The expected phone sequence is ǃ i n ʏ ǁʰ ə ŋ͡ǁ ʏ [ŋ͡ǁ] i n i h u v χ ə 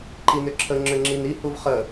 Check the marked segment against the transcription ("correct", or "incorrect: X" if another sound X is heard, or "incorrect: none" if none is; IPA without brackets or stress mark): correct